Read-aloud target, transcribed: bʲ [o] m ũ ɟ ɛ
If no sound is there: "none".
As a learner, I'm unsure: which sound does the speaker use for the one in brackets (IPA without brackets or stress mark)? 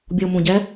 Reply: o